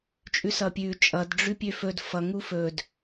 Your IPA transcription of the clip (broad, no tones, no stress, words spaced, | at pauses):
t͡ʃʼʉsʌpʲʉ t͡ʃʼʌdɖ͡ʐʉ pʲøfɵd fʌŋu fɵd